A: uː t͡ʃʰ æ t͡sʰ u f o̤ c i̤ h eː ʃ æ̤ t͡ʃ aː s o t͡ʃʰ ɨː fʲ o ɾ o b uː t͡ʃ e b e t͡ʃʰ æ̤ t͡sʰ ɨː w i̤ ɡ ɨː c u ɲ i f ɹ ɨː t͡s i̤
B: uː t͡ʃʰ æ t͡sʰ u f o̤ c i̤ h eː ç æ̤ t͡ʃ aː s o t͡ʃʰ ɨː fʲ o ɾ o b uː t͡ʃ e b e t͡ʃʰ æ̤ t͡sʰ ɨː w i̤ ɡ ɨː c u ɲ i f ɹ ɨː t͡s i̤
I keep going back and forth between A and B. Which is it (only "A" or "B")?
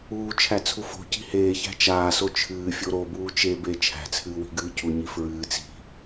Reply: B